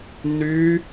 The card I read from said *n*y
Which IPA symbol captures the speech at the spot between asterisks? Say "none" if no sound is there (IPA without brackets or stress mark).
n